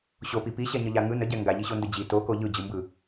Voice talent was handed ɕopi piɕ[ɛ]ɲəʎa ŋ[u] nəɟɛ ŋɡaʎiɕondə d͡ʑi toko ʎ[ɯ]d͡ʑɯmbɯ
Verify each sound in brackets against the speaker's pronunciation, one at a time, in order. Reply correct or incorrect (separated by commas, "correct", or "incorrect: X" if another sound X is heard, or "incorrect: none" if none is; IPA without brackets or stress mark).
correct, incorrect: ɯ, correct